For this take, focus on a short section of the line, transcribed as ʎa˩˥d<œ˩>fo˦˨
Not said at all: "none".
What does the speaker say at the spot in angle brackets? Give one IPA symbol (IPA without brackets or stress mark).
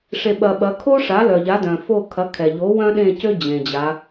œ̃˩